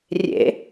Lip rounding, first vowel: unrounded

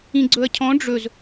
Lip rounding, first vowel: unrounded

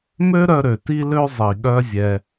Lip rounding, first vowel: rounded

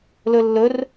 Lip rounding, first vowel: rounded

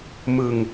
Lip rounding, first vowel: unrounded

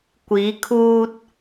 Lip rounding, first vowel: unrounded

